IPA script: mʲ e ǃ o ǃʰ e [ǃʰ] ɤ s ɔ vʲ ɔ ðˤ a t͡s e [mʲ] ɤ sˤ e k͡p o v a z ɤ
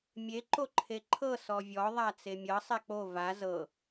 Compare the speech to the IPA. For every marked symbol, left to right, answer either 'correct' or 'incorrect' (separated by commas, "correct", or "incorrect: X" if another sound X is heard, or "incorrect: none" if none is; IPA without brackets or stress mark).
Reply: correct, correct